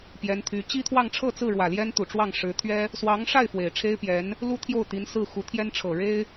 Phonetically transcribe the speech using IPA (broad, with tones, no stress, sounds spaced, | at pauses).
p j ɛ˧˥ n t̪ʰ y˧˥ t͡ɕ i˥ t̪ʰ w ɑ˥˧ ŋ ʈ͡ʂʰ ɤ˥˧ t͡s ɹ̩˥˩ ɻ w ä˨˩ l j ɛ˥ n t̪ u˨˩ ʈ͡ʂ w ɑ˥˩ ŋ ʂ ɻ̩˧˥ t̪ʰ ɥ ɛ˥ | s w ɑ˧˥ ŋ ʂ a˥˩ ɪ̯ f w e˨˩ ɪ̯ ʈ͡ʂʰ e˥ ɪ̯ p j ɛ˧˥ n | l u˥ t̪ʰ j o˥˩ ʊ̯ t̪ i˧˥ n s ɹ̩˥˩ x u˧˥ t̪ʰ j ɛ˥ n ʈ͡ʂʰ ɤ˨˩ ɻ e˥ ɪ̯